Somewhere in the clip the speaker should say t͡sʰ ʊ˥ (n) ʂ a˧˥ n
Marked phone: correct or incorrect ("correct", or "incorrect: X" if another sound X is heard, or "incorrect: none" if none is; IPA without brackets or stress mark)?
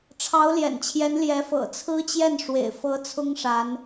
incorrect: ŋ